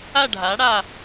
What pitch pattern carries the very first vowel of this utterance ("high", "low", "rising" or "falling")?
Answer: falling